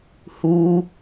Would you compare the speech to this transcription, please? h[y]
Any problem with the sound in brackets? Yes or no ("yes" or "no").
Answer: yes